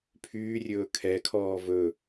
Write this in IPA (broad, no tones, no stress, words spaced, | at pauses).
pʰyːrʲɵː kʰɛkʰɔː vɵ